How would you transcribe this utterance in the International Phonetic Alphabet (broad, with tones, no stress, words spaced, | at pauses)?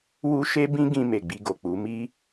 wu˧ ʃe˦bĩ˦ ɡĩ˧me˨ ɡ͡bi˧ɡo˨k͡pu˨˦ mi˦